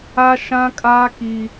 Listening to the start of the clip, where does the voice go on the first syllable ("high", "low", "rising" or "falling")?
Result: high